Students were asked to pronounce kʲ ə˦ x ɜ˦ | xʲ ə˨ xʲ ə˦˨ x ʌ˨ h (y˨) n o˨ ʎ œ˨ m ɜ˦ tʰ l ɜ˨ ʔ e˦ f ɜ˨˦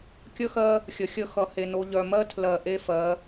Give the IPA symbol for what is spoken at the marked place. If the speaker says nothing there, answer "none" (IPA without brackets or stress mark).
e˨